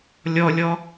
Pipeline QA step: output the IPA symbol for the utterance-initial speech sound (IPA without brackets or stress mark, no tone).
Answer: lʲ